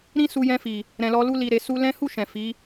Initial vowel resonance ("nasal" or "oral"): nasal